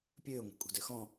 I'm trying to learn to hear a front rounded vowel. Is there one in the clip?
yes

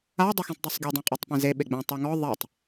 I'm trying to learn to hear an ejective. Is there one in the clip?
yes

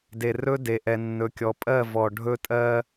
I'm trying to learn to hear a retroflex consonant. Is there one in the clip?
yes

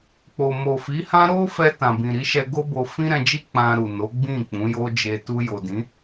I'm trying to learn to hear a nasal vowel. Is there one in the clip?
yes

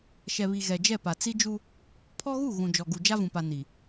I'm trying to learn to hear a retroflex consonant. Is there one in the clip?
no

